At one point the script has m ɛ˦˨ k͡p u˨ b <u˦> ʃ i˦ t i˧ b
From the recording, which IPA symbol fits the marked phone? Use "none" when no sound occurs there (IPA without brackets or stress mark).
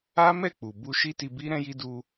u˧